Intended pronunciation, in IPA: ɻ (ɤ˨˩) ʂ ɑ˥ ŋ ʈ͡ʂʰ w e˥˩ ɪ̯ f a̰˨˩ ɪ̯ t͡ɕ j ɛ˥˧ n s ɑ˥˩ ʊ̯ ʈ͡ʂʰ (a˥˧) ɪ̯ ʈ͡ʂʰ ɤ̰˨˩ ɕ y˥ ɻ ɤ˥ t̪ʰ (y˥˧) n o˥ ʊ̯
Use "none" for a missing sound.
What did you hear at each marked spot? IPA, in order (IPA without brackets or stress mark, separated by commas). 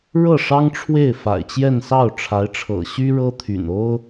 ɤ˥˩, a˧˥, y̰˨˩